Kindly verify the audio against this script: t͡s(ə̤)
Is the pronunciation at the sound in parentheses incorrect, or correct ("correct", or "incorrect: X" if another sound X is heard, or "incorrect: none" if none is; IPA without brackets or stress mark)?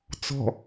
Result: incorrect: ɔ̤